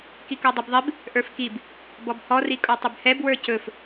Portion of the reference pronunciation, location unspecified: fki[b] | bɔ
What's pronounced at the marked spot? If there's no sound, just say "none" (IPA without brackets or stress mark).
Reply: b